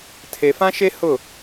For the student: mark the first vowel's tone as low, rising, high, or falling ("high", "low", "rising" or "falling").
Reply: low